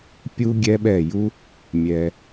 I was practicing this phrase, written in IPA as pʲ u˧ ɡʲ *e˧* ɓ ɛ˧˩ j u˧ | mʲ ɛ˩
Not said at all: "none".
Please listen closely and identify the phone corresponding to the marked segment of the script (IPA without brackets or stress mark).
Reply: ɛ˧